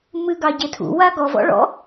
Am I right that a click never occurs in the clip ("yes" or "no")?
yes